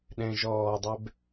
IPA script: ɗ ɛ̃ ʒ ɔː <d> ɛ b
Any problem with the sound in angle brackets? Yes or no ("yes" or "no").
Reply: yes